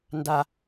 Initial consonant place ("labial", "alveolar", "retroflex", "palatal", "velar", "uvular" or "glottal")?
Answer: alveolar